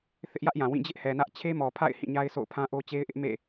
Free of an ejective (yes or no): yes